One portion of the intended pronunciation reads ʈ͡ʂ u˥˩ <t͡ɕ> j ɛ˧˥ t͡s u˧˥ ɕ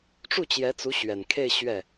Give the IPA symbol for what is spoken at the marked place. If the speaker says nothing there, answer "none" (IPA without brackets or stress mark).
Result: t͡ɕ